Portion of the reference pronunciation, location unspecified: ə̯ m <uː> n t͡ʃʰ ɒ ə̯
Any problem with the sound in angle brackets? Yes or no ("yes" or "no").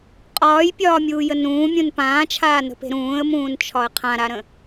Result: yes